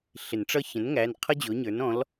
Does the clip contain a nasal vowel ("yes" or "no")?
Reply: yes